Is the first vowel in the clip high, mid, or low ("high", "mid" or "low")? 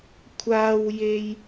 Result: low